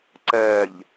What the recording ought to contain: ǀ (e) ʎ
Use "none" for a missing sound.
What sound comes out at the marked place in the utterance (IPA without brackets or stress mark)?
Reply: ɛ